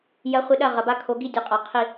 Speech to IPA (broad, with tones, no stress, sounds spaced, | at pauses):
j ɐ˨˦ χʷ ɨ˨ ɗ ɐ˦˨ ʁ ɐ˨ b a˦ kʰ o˨˦ ɡ i˦ dʲ ɨ˨ qʼ a˨ qʰ i˦˨